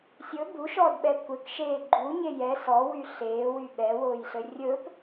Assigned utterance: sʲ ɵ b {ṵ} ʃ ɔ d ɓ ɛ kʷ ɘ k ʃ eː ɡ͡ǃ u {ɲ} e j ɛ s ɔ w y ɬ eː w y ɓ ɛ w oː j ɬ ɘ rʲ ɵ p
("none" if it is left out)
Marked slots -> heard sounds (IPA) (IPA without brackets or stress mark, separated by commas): u, ɲ